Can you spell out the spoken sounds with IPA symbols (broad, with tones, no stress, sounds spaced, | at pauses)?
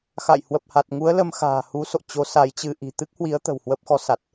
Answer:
x a̰˧˨ j h w ə˨˩ p̚ h a˨˩ t̚ ŋ u˨˦ ə̯ l ə˧ m x a̤ː˨˩ h u˨˦ s o̰˧˨ t͡ɕ o˨˦ s a˨˦ j t͡ɕ ɨ˧ ʔ i̤˨˩ t̪ ɨ˦˥ k̚ h w i˨˦ ə̯ t̪ ə̤˨˩ w h w ə˦˥ p̚ x ɔ˨˦ s a˨˩ t̚